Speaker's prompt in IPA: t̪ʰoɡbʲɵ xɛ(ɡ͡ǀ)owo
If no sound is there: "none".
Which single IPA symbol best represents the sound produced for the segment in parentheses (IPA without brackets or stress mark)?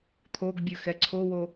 ǀʰ